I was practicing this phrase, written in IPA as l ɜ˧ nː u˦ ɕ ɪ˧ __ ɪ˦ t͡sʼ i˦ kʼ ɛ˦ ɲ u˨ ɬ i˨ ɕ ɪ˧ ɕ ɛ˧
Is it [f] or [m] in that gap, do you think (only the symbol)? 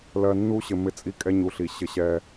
m